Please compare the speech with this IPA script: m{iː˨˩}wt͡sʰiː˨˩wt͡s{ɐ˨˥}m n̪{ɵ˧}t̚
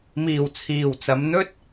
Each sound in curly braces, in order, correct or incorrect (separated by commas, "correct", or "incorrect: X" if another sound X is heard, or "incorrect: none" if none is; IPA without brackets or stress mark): correct, incorrect: ɐ˨˧, incorrect: ɵ˥